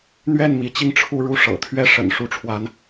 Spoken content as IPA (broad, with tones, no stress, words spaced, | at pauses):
n̪ɥɛ˥˩n mi˧˥t͡ɕi˥˧ŋ ʈ͡ʂʰu˥˧ɻu˥˩ ʂɤ̰˨˩t̪ʰɥɛ˥˩ʂə̰˨˩n ʂu˥ʈ͡ʂʰwa˧˥n